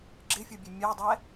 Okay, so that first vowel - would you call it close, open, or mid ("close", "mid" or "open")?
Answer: close